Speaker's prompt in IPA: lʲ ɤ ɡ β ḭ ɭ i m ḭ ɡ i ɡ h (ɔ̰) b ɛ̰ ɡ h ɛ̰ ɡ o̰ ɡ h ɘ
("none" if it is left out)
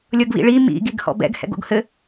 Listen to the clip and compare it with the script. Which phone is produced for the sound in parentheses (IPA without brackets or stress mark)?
ɔ̰